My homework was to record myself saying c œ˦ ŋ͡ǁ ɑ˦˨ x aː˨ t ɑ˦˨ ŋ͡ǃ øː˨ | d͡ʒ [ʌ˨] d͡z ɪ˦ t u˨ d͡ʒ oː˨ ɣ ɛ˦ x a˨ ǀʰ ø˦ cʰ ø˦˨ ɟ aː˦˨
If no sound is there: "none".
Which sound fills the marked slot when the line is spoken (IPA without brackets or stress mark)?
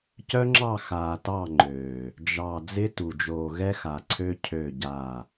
ɑ˨